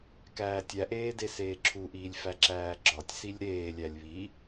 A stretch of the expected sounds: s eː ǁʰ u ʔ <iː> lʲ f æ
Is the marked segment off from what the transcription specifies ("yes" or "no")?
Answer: no